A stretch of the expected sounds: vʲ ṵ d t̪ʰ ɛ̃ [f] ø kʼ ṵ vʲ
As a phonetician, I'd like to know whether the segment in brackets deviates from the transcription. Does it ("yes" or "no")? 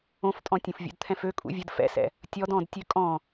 no